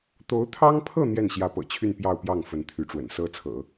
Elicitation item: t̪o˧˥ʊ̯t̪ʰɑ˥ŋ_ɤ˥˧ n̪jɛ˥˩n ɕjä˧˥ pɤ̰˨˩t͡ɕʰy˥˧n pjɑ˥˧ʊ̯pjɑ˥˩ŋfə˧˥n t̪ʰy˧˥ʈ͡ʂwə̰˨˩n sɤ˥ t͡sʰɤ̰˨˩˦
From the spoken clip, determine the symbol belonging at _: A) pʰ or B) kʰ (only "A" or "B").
A